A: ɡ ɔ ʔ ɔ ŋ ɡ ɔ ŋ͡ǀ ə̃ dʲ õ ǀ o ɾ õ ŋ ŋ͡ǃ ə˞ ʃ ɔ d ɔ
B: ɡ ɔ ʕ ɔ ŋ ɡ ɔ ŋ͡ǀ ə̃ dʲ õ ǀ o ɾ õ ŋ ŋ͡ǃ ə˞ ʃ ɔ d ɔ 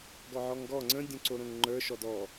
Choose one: B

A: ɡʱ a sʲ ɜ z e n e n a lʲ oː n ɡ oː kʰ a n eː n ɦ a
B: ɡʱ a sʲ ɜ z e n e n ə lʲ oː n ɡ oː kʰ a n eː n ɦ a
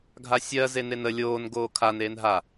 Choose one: B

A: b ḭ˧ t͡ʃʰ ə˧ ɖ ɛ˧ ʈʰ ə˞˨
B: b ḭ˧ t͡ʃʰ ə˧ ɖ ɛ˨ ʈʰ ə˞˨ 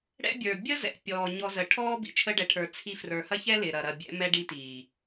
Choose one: B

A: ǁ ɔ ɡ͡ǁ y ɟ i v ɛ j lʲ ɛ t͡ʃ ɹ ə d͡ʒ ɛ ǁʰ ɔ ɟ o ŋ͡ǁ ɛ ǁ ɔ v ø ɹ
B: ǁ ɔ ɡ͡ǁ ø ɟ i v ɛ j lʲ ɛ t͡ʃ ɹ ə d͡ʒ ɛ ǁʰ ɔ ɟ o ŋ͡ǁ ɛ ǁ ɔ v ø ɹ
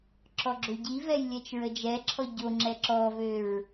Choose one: B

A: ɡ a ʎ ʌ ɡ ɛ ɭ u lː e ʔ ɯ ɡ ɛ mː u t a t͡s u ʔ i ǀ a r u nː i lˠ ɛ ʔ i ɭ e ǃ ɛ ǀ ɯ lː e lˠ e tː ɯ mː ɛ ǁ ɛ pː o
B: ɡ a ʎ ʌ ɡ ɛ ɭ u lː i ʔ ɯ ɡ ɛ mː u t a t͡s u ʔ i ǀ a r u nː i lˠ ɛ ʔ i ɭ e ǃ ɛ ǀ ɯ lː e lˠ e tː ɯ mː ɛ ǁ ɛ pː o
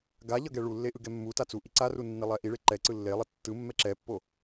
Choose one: A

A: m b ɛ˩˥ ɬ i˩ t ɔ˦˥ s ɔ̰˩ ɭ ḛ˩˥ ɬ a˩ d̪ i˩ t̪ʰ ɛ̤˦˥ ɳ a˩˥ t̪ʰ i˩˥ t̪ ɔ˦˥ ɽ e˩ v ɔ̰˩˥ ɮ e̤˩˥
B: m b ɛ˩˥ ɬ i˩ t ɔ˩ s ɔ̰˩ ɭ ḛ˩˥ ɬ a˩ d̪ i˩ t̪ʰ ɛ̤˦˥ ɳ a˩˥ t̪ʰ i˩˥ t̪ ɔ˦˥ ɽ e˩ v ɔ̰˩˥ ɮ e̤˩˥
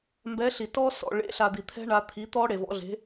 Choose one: A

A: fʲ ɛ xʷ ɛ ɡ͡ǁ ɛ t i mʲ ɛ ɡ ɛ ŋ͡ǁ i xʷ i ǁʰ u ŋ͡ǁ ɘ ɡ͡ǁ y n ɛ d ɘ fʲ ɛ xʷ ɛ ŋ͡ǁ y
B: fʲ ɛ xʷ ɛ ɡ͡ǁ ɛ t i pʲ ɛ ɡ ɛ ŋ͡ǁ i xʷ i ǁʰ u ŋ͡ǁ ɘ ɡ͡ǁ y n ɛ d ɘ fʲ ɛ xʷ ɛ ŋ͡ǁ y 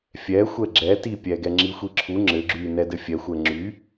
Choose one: B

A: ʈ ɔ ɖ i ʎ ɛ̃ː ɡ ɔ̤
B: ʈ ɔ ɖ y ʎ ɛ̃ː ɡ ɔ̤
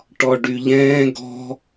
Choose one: B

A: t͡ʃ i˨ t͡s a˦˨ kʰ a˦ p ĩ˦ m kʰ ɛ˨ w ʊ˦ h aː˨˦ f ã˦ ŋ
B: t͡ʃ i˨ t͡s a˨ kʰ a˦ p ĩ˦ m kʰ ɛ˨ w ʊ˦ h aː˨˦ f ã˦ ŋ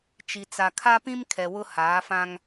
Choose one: B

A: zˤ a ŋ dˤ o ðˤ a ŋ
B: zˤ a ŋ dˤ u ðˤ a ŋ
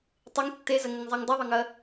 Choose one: B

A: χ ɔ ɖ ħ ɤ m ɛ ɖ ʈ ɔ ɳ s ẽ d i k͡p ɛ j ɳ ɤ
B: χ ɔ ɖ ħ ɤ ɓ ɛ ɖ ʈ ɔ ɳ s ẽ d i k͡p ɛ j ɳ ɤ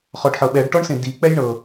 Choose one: B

